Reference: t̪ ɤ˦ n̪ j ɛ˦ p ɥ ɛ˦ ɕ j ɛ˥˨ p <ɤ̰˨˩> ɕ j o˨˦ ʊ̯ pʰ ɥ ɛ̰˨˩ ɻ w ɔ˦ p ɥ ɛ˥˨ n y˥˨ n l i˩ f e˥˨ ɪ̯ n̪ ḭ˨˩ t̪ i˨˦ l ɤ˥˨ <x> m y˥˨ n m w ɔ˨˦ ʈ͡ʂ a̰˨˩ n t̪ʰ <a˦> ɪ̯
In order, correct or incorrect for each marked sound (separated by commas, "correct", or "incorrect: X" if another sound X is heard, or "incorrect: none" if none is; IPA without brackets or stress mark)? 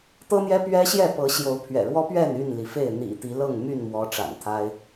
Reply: incorrect: ɤ˨˦, incorrect: ŋ, correct